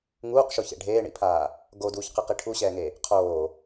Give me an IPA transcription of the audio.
ŋuːqʃoçḛ ɖʱeːɳḭpʰaː | ɡoduːçqɯqi ʈʰuɕɛːŋe | qʰoː

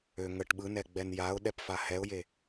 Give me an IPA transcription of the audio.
ø ŋəʈ ɓɯnɛ ɡ͡bɛnjaʊ̯ɗɛp fahɛʊ̯je

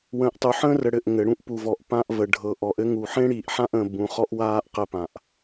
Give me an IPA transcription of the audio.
wə̃ː˨ʔtˤu˨ħə̃ː˦rə˨ ɽɘ˨ʔ ŋɘ˨ ɽũ˦ʔpu˨vɔ˨ʔpã˦ʔ və˨ɖʱɤ˨ ʔɔ˨ʔɘ˦ŋu˨ ħẽ˦ɽiː˨ʔħã˦ʔə̃ː˨ bũ˨χɔ˦ʔwaː˦ʔ qɘ˦pã˨ʔ

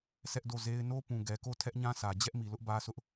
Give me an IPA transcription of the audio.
sʰɛ˦ʔdo˦˨ze˦ɪ̯ no˦pũ˨ ɡɛ˨ko˦˨ tʰɛ˦ʔɲã˦sä˨ d͡ʑɛ˦ʔmi˨lʊ˦ʔ bä˦sʊ˦ʔ

